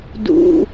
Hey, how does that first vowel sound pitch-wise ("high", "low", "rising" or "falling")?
low